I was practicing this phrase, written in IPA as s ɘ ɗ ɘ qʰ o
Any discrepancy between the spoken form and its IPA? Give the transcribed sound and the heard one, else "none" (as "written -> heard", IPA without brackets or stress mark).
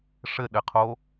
s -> ʂ